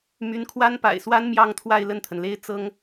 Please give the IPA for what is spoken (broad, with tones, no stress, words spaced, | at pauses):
my˧˥nkʰwa˥npa̰˨˩ɪ̯swa˥n mjɑ˥˧ŋt̪ʰwa˥˧ɪ̯ lə˥˩nt̪ʰə˩nle˥ɪ̯ t͡sɤ˥ŋ